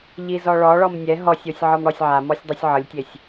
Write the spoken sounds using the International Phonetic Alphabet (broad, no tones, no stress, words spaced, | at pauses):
ʎizɔɭɔɭɔm nʲɛ ɦɔsʲosʲ ʕɔmɽɔsʲʕamɔsʲ dˤusʲʕɤlʲtʲesʲ